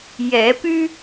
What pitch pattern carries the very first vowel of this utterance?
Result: rising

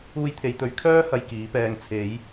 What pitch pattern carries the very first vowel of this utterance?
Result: high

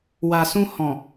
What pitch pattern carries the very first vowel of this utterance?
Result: low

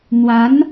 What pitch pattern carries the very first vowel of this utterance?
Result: rising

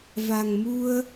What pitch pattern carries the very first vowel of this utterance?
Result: low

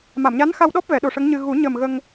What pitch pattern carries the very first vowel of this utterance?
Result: low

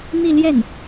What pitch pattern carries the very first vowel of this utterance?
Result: falling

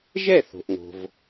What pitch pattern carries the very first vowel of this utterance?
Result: falling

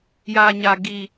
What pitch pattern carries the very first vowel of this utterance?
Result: low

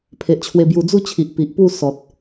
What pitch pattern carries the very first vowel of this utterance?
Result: low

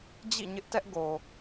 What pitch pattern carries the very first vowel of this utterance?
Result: falling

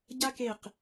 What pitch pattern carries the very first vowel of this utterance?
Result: high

